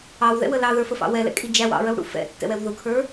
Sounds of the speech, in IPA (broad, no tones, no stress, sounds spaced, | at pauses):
ɑ w ð ɛ̰ w ə l ɑ ð ə˞ f ə f ɑ̰ w ɛ l ɛ̰ kʼ i d͡ʒ æ w ɑ̰ ɹ ə w ɽ ṵ f ɛ̰ tː ɛ̰ w ɛ w ð ʊ kʰ ə˞